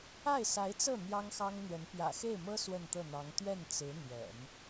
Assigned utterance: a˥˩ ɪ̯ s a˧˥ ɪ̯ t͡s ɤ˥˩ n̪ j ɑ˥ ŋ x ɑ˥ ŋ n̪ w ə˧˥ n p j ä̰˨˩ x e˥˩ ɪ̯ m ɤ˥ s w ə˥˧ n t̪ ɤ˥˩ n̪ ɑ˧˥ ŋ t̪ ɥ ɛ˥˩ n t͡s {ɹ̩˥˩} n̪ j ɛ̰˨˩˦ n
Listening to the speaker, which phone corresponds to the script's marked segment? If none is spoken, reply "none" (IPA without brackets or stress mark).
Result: ɹ̩˧˥